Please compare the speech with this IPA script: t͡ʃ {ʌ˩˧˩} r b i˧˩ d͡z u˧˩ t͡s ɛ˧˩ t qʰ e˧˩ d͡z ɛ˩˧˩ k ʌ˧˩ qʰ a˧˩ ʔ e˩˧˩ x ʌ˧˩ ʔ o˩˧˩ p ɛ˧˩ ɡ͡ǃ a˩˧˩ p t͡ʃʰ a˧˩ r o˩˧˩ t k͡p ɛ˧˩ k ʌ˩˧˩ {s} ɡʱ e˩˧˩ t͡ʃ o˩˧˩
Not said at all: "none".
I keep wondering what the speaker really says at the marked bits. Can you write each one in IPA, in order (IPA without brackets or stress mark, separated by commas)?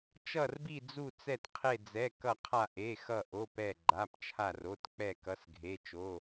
ʌ˧˩, s